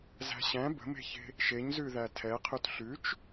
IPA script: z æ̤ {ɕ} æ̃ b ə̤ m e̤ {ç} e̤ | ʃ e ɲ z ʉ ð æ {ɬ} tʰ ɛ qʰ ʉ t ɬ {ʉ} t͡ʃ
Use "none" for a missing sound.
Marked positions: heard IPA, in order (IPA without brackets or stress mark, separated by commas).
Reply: ɕ, ç, none, ʉ